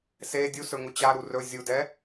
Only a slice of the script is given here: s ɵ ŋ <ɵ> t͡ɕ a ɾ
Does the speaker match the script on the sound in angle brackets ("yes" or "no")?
no